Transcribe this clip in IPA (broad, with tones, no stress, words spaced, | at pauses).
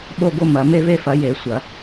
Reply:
ɓo˦˨ɡo˦˨ mɐ˨˩˦ me˦˨ve˦˨fɐ˨˩˦ je˨˩˦ sʷɐ˨˩˦